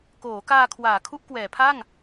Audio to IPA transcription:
k oː˩˦ k aː˧ kʰ w aː˩˦ kʰ u˦˥ ʔ k w ɛː˩˦ pʰ a˥˩ ŋ

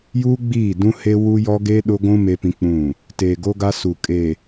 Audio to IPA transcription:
j uː˦ ɡ͡b iː˦˨ d ũ˦ h e˦ w u˦ j ɔ˦ ɡ e˦ ɗ ʊ˦ ɡʷ ũ˦ m e˦ p ĩ˦ k͡p ũ˦˨ | t eː˨ ɡ o˦ ɡ a˦ s u˨ kʼ e˨

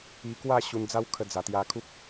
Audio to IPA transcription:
i˧ k w a˥˧ ɕ u˧ n d͡z a˦ w kʰ ə˧ d͡z a˨˩ t̪ j a˧ kʰ u˦ k̚

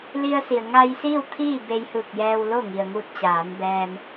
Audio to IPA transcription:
l i˧ ə̯ s i˩ ə̯ ŋ a˧ j s iː˥˨ w t̪ʰ iː˥˨ b e˧ j h ɯː˧˩ k̚ j ɛː˧ w l o˥˨ ŋ i˩ ə̯ ŋ u˧ t̚ t͡ɕ aː˩˧ n b ɛː˧ m

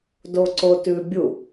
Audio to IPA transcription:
d o ǀ o t ʉ bʲ u

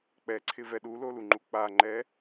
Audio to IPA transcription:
k͡p ɛ ǀʰ ɪ v ɛ ɗ u l o l u ŋ͡ǃ u k͡p a ŋ͡ǃ ɛ

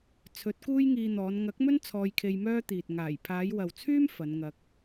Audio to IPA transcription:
t͡sʰ ɵ˨˥ t̚ k uː˥ j ŋ iː˧ n̪ ɔː˨˧ n ŋ ɐ˨˥ k̚ m ɵ˥ n t͡sʰ ɔː˧ j kʰ e˧ j m œː˥ t̪ iː˨ t̚ ŋ aː˨˩ j pʰ aː˨˧ j w ɐ˨ w t͡sʰ yː˥ m f ɐ˨˧ n ŋ ɐ˧ k̚

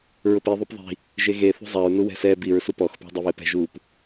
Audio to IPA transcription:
ɹ ʊ p i ðˤ o p ðˤ i̤ | ʒ e ɣ e θ ṳ zˤ a ɹ n u w ɛ̤ s ɛ b i ɹ s u p ɔ x p ṳ dˤ e β e p ɛ̤ ʒ u p

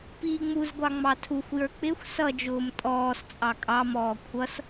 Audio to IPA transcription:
p iː ŋ͡m u z ɡʷ ɑ ŋ͡m ɑ tʰ u xʷ j ə˞ k͡p ɪ xʷ s ʌ d͡ʒ ʊː m tʼ ɔː s t͡sʼ ɑ kʼ ɑ m ɔː kʷʰ ʌ s

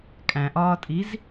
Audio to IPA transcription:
kʼ æ̃ ʔ ɒː tʼ i z

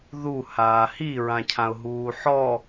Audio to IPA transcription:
ð u h aː h i ɹ ã cʰ ã ʊ̯ ɦ uː ħ ɔ

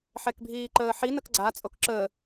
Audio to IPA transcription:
ħ ɛ k bʱ iː ǃ əː ħ i n ə k ɡ͡ǀ a t͡sʼ o k ǁ ə

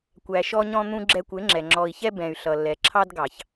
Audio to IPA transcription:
kʷ æ˨ ʃ ɔ˧ ɲ ɔ̃˧ n̪ ũ˧ ɡ͡ǁ ɛ˧ kʷ ɪ˨˦ ŋ͡ǁ ɛ˨ ŋ͡ǁ ɔ˨ i̯ ç ɛ˧ b ɛ̃˨ y̯ ɬ ʌ˨ lː ɛ˨ ǁʰ ɑ˧ d ɡ ɑ˨ ç

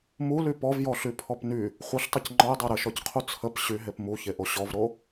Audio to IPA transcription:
m u l y p ɔ v j ɔ ɬ y pʰ ɔ p n y | χʷ ə ɬ tˤ ə c ŋ͡ǃ ɔ j dˤ e ɾ ə ʃ ɔ c qʰ u t͡sʰ ə p ɕ y ɦ e p m u ç e ʔ o ɕ ɔ v ɾ o

